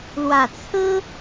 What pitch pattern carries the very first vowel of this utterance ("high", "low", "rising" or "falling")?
low